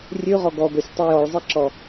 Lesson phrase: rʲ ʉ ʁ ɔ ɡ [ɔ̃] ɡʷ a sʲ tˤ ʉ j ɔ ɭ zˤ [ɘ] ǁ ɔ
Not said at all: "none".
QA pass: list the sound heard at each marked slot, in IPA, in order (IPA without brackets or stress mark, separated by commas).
ɔ, ɛ